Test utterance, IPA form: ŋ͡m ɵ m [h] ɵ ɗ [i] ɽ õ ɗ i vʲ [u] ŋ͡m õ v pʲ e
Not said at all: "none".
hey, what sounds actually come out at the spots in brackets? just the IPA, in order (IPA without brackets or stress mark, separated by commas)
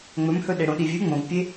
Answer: h, e, ʉ